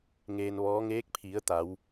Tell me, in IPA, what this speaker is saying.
ŋ eː˧ n ʋ ɔː˧˥ ŋ eː˧˥ k̚ pʰ i˩˧ ə̯ t̪ a˩˧ w

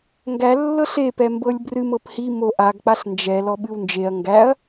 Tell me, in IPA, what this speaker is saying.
ŋ ɡ æ lː ɤ ɬ e p ɛ m b ɤ lʲ b r ɨ m ɤ p h i m o ʔ a ɡ k͡p a ɬ n d͡ʒ ɛ l ɔ ɓ ɨ w n d͡ʒ e ɐ̯ ŋ ɡ æ ɐ̯

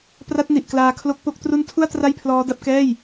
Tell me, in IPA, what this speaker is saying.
p r a˦˥ t̚ n i˨˩ ʔ k l aː˧ kʰ l o˦˥ k̚ p o˥˩ k̚ t r u˦˥ n tʰ u˥˩ a̯ t r a˥˩ j pʰ l ɔː˦˥ d a˦˥ p̚ k ɛː˥˩ j

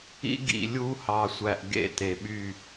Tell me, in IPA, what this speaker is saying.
ḭ˦ ɡ ḭ˨ lʲ u˦ h ɑ˨ sʷ æ˨ ʔ ɡ ḛ˦˨ t e˨ ɓ y˦˨

